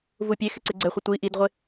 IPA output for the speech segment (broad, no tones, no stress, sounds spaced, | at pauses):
v u pʲ e x ɪ ǀ e ɡ͡ǀ ɛ χʷ ɪ tʷ i ʔ i d ʁʷ ɪ